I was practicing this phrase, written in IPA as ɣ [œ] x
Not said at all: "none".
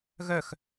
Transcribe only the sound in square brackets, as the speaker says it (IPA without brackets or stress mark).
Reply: œ